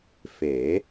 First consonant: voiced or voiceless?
voiceless